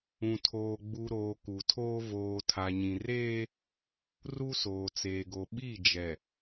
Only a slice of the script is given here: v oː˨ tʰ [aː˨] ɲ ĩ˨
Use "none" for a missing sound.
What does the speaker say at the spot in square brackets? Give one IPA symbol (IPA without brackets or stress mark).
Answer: a˨